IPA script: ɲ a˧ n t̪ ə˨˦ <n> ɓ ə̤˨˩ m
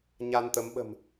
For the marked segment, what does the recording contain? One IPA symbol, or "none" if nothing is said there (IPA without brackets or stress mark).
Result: m